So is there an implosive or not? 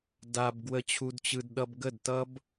yes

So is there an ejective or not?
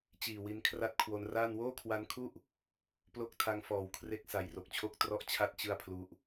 no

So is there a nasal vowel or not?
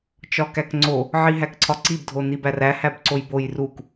no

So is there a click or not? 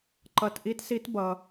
yes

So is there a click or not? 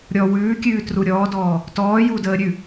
no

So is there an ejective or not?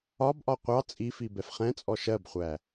yes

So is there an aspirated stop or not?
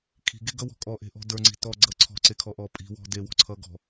yes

